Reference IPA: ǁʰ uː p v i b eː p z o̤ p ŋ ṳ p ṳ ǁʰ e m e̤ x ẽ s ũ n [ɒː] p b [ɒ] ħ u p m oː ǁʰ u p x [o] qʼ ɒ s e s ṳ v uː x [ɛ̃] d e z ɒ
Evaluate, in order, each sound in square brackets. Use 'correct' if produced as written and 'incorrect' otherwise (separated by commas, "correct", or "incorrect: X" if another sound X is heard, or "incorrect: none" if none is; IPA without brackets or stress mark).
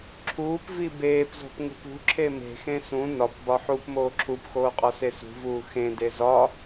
incorrect: ɒ, correct, incorrect: oː, incorrect: ẽ